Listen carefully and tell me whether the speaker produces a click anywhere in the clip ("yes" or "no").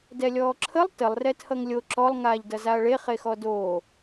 yes